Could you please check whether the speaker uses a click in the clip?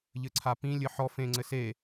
yes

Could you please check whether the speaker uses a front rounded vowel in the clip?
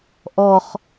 no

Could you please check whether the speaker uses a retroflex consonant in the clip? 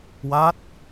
no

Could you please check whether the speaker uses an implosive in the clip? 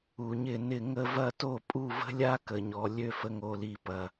no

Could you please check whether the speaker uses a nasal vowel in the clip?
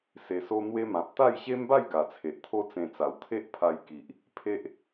yes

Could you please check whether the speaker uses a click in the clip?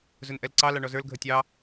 yes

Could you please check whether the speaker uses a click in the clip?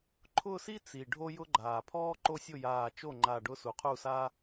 yes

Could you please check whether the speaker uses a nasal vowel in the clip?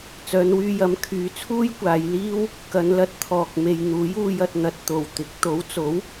no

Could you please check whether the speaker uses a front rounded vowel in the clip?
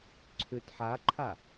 yes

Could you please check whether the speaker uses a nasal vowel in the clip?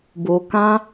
yes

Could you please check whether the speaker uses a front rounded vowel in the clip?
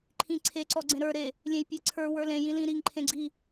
no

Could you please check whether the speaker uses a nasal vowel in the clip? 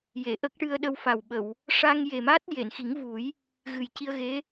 no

